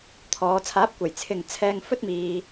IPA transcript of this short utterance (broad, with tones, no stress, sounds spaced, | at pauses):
t̪ʰ ɔː˨˧ t͡sʰ aː˨˥ p̚ kʷ ɐ˨˩ j t͡sʰ ɪ˨ ŋ t͡sʰ ɛː˧ ŋ f ɵ˥ t̚ m iː˧